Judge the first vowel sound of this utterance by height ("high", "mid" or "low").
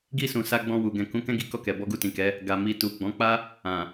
high